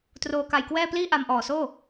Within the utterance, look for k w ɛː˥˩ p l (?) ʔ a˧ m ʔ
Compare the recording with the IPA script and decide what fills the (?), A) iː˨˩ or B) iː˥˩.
B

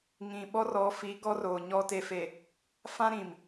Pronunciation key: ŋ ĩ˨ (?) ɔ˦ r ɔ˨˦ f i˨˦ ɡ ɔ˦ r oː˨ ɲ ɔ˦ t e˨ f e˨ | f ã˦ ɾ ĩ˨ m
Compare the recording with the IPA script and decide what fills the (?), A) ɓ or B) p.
A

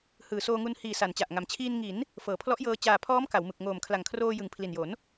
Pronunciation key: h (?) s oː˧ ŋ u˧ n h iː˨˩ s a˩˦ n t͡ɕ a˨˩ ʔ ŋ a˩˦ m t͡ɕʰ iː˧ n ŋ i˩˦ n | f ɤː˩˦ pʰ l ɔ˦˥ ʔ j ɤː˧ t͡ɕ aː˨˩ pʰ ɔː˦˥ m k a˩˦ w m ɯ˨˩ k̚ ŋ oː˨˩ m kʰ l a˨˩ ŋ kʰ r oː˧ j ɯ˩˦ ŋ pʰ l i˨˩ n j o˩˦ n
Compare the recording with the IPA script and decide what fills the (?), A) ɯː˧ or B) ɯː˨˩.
B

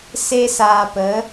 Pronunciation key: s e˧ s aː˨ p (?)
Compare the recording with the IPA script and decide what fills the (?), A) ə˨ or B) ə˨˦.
B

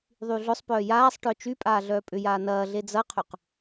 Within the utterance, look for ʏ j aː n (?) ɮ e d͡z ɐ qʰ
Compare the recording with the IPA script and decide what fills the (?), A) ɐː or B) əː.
A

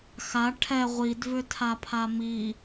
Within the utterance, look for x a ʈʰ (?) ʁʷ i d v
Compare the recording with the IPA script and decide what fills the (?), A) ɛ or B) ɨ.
A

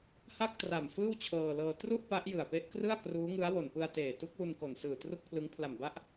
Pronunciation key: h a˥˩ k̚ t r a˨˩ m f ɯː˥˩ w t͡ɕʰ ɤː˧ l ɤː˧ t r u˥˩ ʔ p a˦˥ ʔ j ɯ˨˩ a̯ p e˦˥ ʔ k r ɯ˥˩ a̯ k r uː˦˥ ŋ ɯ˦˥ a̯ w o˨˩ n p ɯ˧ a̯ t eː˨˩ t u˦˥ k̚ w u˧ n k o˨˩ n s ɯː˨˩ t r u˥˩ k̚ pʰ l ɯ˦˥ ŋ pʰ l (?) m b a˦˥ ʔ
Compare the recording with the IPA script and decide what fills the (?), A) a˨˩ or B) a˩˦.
A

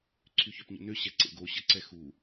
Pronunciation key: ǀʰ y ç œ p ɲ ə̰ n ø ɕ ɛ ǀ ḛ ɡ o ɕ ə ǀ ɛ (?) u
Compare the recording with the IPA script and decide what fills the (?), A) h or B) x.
B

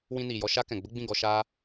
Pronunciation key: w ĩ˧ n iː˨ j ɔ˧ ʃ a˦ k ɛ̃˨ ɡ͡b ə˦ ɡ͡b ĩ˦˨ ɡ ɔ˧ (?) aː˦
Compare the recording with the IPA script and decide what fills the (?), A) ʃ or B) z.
A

